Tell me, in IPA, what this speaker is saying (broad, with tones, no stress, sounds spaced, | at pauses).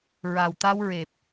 ɹ a˨˩ w t̪ a˧ w ɹ e˨˩ p̚